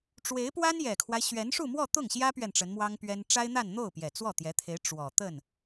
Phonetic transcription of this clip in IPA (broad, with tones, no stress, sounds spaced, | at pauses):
ʈ͡ʂ w e˧˥ ɪ̯ p w a˥ n j ɛ˨˩ kʰ w a˦ ɪ̯ ɕ ɥ ɛ˧˥ n ʂ u˥˧ m w ɔ˥˧ t̪ ʊ˥˩ ŋ ɕ j ä˥ p ɥ ɛ˨ n ʈ͡ʂ ə˧˥ n m w ɑ˥ ŋ p ɥ ɛ˥ n ʈ͡ʂ a˥ ɪ̯ n̪ a˥˧ n n̪ o˥˩ ʊ̯ p j ɛ˨˩ t͡s w ɔ˥˩ t̪ j ɛ˧˥ t̪ʰ e˧˥ ɪ̯ ʈ͡ʂ w ɔ˨˩ t̪ ə˥˩ n